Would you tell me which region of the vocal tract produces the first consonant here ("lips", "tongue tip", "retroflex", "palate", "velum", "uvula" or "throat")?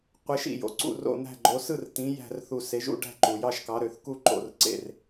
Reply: uvula